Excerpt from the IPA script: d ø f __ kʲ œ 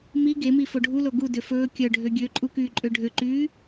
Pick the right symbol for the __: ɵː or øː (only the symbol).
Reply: ɵː